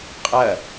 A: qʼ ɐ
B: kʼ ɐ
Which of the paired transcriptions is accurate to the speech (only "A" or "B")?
A